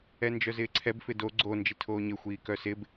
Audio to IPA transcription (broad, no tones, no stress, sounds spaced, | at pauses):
ɛ n d͡ʒ œ z ɪː ǀʰ ɛ b f ɪ d o ɡ͡ǀ o n d͡ʒ i tʰ oː ɲ ɪ xʷ iː k œ s ɪ b